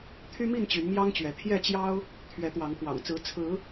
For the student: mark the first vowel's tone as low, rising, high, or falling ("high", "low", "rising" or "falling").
high